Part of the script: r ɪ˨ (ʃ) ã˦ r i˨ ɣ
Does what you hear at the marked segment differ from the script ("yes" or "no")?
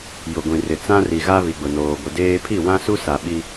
yes